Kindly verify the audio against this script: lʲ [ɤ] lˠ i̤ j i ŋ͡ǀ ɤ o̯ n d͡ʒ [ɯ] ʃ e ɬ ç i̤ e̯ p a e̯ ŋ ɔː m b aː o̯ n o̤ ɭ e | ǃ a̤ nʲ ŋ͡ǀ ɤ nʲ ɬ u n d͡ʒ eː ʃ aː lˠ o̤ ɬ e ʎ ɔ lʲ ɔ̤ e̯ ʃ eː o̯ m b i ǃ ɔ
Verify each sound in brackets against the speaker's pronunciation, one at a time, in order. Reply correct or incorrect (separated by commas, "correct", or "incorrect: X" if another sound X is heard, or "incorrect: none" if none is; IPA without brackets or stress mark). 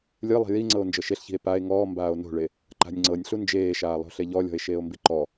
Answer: incorrect: ɯ, incorrect: ɤ